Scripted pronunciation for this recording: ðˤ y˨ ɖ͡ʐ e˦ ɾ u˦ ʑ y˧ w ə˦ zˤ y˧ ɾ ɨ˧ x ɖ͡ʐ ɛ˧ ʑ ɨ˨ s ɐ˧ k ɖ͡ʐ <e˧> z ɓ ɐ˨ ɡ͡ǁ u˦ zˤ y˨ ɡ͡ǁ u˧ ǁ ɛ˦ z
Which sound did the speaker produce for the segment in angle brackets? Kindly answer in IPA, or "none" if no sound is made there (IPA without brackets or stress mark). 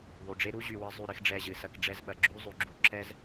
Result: ɛ˧